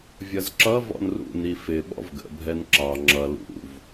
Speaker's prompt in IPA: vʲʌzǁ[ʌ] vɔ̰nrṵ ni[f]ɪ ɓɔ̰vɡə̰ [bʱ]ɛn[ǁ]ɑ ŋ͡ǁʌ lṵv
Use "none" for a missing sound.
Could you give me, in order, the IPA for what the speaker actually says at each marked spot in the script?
ʌ, f, bʱ, ǁ

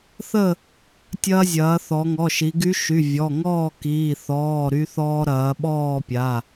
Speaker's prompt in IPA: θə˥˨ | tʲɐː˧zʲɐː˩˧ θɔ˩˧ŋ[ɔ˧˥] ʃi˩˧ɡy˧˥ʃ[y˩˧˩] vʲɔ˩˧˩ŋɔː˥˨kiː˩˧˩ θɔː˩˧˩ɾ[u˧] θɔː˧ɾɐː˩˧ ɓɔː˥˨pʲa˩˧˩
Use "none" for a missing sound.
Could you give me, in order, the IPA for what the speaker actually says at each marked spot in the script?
ɔ˩˧˩, y˩˧˩, y˧

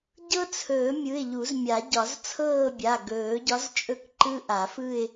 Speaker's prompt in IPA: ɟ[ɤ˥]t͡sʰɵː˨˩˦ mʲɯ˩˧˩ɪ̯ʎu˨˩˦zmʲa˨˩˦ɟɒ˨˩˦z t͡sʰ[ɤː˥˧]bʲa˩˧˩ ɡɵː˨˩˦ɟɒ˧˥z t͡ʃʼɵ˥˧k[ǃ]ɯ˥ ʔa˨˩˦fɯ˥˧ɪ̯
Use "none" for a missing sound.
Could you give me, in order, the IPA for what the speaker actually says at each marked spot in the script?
ɤ˥, ɤː˥˧, ǃ

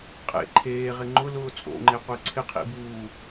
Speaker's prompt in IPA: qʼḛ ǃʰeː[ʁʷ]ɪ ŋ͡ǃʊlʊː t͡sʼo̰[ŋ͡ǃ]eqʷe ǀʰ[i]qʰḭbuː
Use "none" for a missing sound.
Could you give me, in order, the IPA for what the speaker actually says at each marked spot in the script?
ʁ, ŋ͡ǃ, ɪ

